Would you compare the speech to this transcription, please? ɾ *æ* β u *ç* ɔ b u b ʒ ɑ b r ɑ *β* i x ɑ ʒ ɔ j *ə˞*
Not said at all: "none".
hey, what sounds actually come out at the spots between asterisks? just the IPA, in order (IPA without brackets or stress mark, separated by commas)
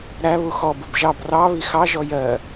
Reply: æ, x, β, ɜ